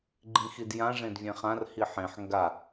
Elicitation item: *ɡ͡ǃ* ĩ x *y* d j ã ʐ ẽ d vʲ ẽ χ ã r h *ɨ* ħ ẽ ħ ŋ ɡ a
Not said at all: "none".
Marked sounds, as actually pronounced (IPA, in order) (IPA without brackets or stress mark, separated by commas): ɡ͡ǃ, i, i